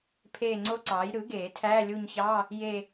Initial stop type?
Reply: aspirated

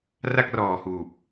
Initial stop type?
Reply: plain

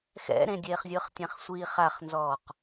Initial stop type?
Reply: plain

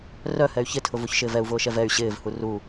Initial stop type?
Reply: aspirated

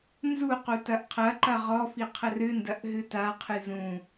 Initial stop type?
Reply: plain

